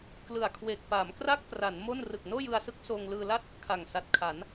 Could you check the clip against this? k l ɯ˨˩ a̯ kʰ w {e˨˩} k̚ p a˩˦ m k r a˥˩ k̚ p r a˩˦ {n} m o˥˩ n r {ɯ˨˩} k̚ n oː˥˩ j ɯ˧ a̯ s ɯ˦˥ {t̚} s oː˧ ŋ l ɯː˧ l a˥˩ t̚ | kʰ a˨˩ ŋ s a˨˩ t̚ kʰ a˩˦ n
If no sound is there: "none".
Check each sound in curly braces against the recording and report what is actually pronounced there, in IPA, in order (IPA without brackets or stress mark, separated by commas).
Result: e˨˩, n, ɯ˨˩, k̚